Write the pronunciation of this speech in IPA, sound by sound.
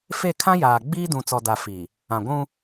f e˦˨ kʰ ã˦ j aː˨ ɡ͡b iː˦ d ũ˨ t͡s ɔ˨ d a˨ f i˨ | ã˨ ɡʷ ũ˦

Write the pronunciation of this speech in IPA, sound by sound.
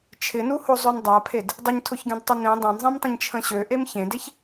t͡ʃʰ ɪ n u h o zˤ ø n dˤ a pʰ e d | dˤ ɪ ɲ tʰ ʊ ç ɡ ẽ d tˤ ə n ẽ dˤ ã n zˤ ẽ m tˤ ə̃ ɲ t͡ʃʰ ə̃ ɕ ø ʔ e m ç ẽ d e ç

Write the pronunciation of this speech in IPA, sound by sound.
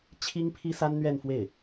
t͡ɕʰ i˥ ŋ pʰ i˥ s a˥ n n̪ ɥ ɛ˥˧ n f w e˥˩ ɪ̯

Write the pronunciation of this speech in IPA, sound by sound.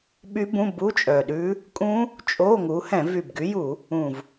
ɓ y˦˥ b ũ˧˥˧ b u˧˥˧ t͡ʃʼ œ˨˩ ɗ ʉ˦˥ | kʼ ũ˦˥ | t͡ʃʼ o˧˥˧ ŋ u˨˦ h ɛ̃˧˩˧ v y˨˩ b ɡ y˨˦ j u˧˩˧ | ũ˨˩ v

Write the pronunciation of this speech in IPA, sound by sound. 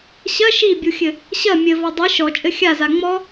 ɕ ɐ ʃ i bʲ u xʲ ɘ | ɕ ɐ mʲ ɘ v ɔ dˤ i ʃ ɔ t͡ʃʼ ɘ xʲ a z a ŋ͡m ɔ

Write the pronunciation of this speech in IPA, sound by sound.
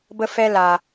b ə˧ f ɛ˦ l a˨

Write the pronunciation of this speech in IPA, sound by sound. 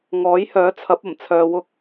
ŋ ɔː˨˥ j h œː˨˥ t͡sʰ ɐ˨˥ p̚ ɐ˨˩ m t͡sʰ œː˧ w ʊ˥ k̚

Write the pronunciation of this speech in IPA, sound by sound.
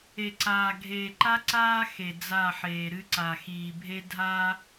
e˨ ǀ aː˨ ɡʱ eː˨ ǃ a˦ ǀ aː˦ x e˨ d͡z a˦˨ ħ eː˨ ɾ ɨ˦ ǀ a˨ x iː˨ bʱ e˦ dʱ a˦

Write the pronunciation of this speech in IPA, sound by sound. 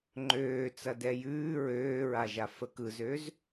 ŋ͡ǃ øː t͡s ɐ d ɛ j ʉː ɹ øː ɹ a ʒ a f ə k ɯ z ø z

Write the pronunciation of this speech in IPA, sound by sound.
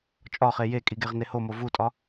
t͡ʃʼ ɒ χ e j e kʼ i ɡ e ʁ n e h o m o v u tʼ ɒ

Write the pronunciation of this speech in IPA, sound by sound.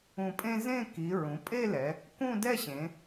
ũ˧˩ pʼ ẽ˥ z ẽ˥˧ k i˩˧ ɹ ũ˩˧ pʼ e˥˧ l ɛ˩˧ | k ũ˥˧ d ɛ˥˧ ɕ ẽ˩˧

